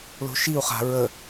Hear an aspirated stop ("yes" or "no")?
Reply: no